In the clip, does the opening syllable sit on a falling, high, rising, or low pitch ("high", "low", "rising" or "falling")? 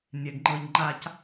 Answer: low